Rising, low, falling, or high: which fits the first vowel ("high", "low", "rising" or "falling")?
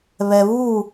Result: low